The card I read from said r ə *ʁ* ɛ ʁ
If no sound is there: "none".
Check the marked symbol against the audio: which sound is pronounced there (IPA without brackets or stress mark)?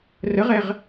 ʁ